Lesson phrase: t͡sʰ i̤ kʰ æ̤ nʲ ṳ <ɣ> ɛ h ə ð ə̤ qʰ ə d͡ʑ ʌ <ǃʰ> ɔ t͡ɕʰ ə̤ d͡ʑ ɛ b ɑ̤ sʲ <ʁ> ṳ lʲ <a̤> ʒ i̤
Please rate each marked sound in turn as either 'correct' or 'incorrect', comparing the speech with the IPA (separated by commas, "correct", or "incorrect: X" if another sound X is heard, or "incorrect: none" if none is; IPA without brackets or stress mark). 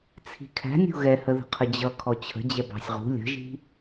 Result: correct, incorrect: kʰ, correct, incorrect: ə̤